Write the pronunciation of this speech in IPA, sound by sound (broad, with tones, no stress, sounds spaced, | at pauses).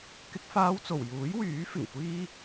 k ɪ˧ k̚ f aː˧ w t͡s o˨˩ w j uː˨˥ j w yː˨˥ f ɪ˨˩ ŋ kʷ iː˥